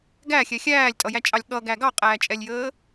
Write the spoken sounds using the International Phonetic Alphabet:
ɡæxʲɛ xʲæːlʲtʼʌjæt͡ʃʼɑlʲ ɠʌɡæ ɡɑqʼæːt͡ʃʼɛlʲjəː

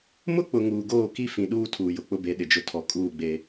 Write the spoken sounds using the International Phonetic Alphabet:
mʊ˦k͡pʊ˨ ŋuː˨ɡoː˦˨ki˦fĩ˨ ɗuː˦tʰuː˨jʊ˨ k͡pʊ˦be˨˦ɗɪ˨d͡ʒʊ˦ tʰɔ˨kʼuː˦˨ɡ͡be˦

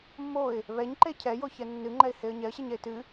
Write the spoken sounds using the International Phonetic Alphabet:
mːoɪ̯ | βɛɲǃe cʰɛjoçɛ nːɨŋ͡ǃɛɪ̯heə̯ ɲɛə̯ɕeɲɛɪ̯ tɨ

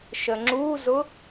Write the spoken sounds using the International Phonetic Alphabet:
ʃəŋ͡ǁuzʊ

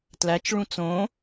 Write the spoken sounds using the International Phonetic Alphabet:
tlæt͡ʃɭũ t͡sõ

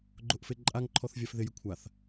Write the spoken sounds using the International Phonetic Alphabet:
ɡ͡ǃʊʔfeǃʼaŋǃʰɔθ vʲafðɪjɪ kʷʰaθ

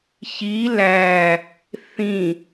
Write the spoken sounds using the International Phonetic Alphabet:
çi læ | θĩ

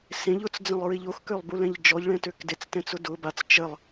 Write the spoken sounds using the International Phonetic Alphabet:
sẽʎ ʊt͡sd͡zə̃lˠɹiʎ oxkølˠbulɛ̃ʎ d͡ʒɔʎɭɛ̃tøk det͡stɛ̃t͡sʊ dʊ bat͡s t͡ʃəlˠ

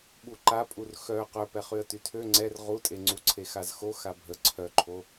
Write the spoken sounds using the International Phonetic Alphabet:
ɓuǃapʼur xœ qœpɛχyə̯ tytʰø ŋ͡ǀɛr ʁutʼeŋ͡ǀu ǀʰexazxo xabʱə ǀʰœǃʰo

